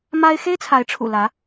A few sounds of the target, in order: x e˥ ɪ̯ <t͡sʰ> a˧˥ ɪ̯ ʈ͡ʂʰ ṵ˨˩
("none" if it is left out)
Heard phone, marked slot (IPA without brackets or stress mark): t͡sʰ